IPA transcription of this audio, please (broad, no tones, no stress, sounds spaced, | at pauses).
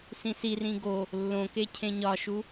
s ĩ s i r ĩ ɡ o | lː õ k e cʰ ẽ ɲ ɒ ʃ u